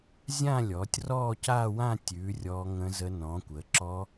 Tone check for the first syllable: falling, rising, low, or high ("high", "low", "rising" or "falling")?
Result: falling